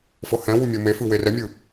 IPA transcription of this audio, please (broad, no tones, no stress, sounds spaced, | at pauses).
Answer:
f ɤ h ɛ̃ w u mʲ ɤ m e f ɯ w e r ɛ mʲ ɯ